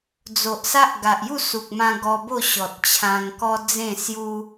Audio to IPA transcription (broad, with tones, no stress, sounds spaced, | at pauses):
d͡z o˨ ʔ s a˦ ʔ ɡ a˨ ʔ j u˥˧ s u˨ k̚ m ã˧ ɡ ɔ˧ b o˥˧ ɕ ɔ˨ t̚ t͡ɕʰ ã˧ ŋ k ɔ˦ d͡z ẽ˥˧ s j u˦